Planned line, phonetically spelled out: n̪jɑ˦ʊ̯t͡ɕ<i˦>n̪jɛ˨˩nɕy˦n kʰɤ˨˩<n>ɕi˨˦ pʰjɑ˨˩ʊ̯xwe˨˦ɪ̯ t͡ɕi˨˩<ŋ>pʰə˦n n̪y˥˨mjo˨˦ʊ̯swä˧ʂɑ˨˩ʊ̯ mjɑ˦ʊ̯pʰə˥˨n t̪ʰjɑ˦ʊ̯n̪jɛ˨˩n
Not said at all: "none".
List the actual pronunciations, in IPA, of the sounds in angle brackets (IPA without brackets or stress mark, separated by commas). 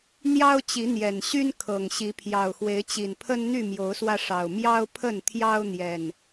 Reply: i˨˦, ŋ, n